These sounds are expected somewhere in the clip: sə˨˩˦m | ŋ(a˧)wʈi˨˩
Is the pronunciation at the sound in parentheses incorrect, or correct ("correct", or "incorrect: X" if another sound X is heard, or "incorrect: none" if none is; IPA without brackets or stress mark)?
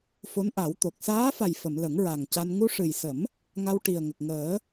correct